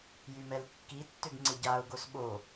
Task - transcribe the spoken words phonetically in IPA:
j y m ɛ l kː i tː ʏ ɡ ŋ͡ǀ ɪ ɟ a ʊ̯ ɡ o s ɓ o

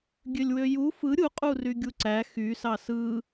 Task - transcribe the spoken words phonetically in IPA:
ɡʲ ø lʲ w ø j u f ɯ ɾʲ u qʼ u r y ɡʲ u ǀ æ x y s ɑ s ɯ

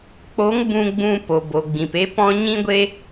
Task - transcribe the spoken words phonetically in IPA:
k͡p o˨˦ ŋ b ũ˧ ɡ͡b ũ˧ p o˨ b o˨ ɡ͡b ĩ˨ p e˦ p ɔ̃˦ ɲ ĩ˦ ɡʷ e˦

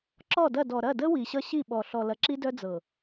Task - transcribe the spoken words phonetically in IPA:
ǁ ɔ˦˨ d ɐ˦˨ d ɔ˨ ɾ ɐ˦˨ d ə˦ w i˨ ɕ ʌ˦ ɕ i˦˨ ɓ ɔ˨ ɬ ɔ˨ l ɐ˨ ǁ i˦ d œ˦ d͡z ɤ˨

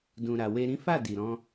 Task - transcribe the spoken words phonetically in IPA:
d ũ˨ ɾ a˨ w e˧ ɾ ĩ˦ f a˦˨ d i˨ ɾ ɔ̃˧

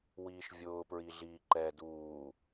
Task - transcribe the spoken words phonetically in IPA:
w iː ʃ vʲ ʊː p ɹ i ɮ iː ǃ ɛː d uː

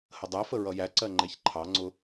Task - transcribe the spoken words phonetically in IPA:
h ə dˤ ɛ f ə ɹ ʌ j æ ǀ ɜ ŋ͡ǃ ɛ ç ǃʰ ɑ ŋ͡ǀ ʊ

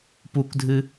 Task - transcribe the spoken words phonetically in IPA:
p u k dʱ ɨ

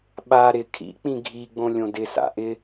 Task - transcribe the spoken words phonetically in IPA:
ɓ a ɾ ɪ kʰ ḭ k͡p ĩ ɡʱ i ɡ͡b õ lʲ õ d ɪ s a̰ ʔ ɪ

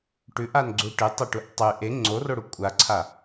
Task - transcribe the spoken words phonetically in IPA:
ʈ ʉ ʔ a n ɡ͡ǀ u ʈ ɨ tˤ ɐ ʈ u ʔ tˤ ʉ ʔ e ŋ͡ǀ o r o ɽ u kʷʼ a ǀʰ a

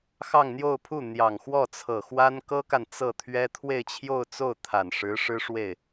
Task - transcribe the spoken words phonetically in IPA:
x ɑ˥˧ ŋ n̪ j o˥˧ ʊ̯ pʰ u˥˩ n̪ j ɑ˨˩ ŋ x w ɔ˥˩ t͡sʰ ɤ˨˩ x w a˥ n k ɤ˥ k a˨ n t͡s ɤ˥˩ t̪ʰ ɥ ɛ˥ t̪ʰ w e˥˧ ɪ̯ t͡ɕʰ j o˥˧ ʊ̯ t͡s o˥˩ ʊ̯ t̪ʰ a˨˩ n ʂ ɻ̩˧˥ ʂ ɻ̩˥ ʂ w e˥˩ ɪ̯

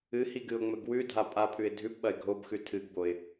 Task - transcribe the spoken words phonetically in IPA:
ɨ h i ɡ ɨ ʊ̯ ŋ͡m ɵ ɡ w ʉ dʱ a pʼ a pʰ ʉ ɪ̯ dʱ ʉ p ɓ ɐ ɪ̯ ɡʱ o b x ʉ tʰ ɨ ɡ b o ɪ̯

